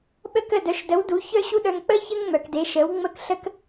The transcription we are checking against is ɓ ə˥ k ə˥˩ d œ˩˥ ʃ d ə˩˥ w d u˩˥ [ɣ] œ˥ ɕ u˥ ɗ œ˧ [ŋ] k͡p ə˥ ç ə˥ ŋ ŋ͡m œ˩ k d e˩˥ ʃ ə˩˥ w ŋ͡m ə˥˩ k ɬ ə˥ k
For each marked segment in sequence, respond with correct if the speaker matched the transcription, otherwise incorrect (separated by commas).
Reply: incorrect, correct